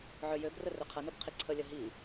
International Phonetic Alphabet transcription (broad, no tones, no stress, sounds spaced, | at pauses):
ʕ ø j ø b r ə r ø qʰ ɐ n o b qʰ i ǀʰ ə lʲ ɐ ɦ i